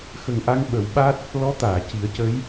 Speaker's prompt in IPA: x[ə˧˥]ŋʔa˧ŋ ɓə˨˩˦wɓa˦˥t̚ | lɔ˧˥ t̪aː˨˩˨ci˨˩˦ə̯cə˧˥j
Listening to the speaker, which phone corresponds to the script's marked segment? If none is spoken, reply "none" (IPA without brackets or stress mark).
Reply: ə˨˩